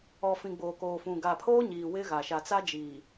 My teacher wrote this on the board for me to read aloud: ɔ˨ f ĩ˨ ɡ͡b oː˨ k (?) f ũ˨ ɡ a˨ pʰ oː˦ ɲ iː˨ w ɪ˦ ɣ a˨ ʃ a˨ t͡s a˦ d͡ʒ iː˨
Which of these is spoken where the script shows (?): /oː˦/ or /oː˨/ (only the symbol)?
oː˨